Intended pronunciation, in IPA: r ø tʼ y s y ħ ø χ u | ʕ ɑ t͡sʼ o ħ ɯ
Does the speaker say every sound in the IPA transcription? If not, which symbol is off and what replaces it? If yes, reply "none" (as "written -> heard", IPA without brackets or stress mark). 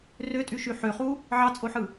s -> ʃ